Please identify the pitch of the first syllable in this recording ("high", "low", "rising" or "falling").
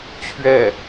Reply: falling